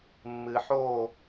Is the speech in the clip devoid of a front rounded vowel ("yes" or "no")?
yes